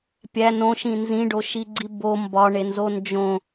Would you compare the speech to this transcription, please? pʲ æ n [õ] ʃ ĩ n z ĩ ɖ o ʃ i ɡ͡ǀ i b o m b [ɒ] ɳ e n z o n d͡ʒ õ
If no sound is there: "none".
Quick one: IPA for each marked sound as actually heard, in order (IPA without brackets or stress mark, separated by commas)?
õ, ɒ